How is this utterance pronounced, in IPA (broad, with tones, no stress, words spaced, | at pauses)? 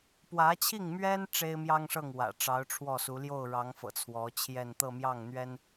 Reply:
pwä˧˥t͡ɕʰi˥˩ŋmɥɛ˥n ʈ͡ʂe˥ɪ̯mjɑ˥ŋʂɤ˥˩ŋ wä̰˨˩ ʈ͡ʂɑ˧˥ʊ̯ʈ͡ʂʰwɔ˥˩su˧˥ ljo˥˩ʊ̯ɻɑ˧˥ŋfɤ̰˨˩ t͡sʰwɔ˧˥t͡ɕʰjɛ˥˧n t̪ɤ˥˧mjɑ˥˩ŋn̪ɥɛ˥n